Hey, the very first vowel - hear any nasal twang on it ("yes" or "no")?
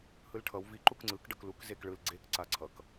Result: no